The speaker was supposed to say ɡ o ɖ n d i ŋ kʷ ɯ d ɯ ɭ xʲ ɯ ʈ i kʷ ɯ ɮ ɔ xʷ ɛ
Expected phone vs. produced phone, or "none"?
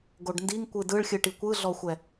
none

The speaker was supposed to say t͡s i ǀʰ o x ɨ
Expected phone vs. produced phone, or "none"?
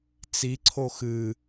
none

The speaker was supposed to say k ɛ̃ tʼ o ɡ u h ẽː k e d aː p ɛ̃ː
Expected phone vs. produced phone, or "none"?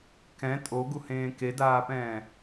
none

